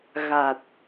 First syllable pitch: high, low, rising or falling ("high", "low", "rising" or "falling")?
low